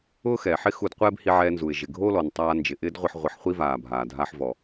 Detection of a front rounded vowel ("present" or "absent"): absent